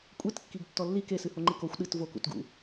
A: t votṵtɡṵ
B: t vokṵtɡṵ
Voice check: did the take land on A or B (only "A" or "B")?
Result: B